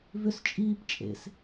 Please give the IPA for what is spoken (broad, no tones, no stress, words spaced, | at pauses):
vʏst͡ʃʼiːp t͡ʃʼḛs